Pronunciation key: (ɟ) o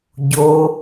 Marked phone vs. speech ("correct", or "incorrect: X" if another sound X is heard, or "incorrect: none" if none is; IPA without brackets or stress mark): correct